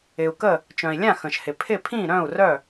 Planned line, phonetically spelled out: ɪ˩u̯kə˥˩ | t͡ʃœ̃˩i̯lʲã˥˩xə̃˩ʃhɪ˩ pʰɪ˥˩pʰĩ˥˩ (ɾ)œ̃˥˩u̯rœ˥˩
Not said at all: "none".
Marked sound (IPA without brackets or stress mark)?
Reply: ɾ